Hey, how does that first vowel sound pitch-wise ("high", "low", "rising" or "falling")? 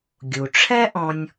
low